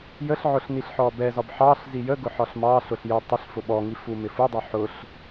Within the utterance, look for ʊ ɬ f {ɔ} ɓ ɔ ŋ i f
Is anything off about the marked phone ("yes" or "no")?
yes